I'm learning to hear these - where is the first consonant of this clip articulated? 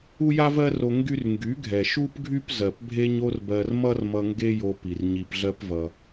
palate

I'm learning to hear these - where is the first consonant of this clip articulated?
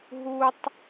throat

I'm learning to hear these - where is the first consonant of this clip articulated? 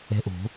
throat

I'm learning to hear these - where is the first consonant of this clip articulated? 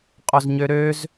uvula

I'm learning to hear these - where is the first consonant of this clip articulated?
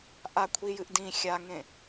throat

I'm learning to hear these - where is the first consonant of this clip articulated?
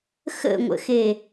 velum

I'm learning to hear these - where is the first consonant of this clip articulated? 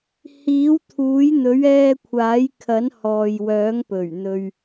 throat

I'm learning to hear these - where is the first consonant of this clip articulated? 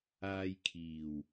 palate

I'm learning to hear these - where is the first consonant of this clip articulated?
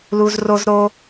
tongue tip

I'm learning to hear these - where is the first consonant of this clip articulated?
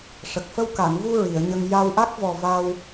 retroflex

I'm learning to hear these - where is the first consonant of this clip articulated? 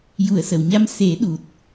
palate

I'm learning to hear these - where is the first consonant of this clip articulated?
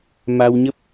lips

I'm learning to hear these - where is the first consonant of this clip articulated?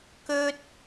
velum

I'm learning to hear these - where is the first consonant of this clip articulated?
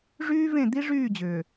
retroflex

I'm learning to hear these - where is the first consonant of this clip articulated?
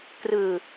velum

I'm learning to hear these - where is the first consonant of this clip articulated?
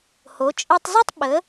throat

